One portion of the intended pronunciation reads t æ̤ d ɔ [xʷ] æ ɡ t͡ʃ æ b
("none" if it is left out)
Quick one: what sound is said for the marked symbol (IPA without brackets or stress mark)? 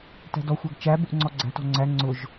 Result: xʷ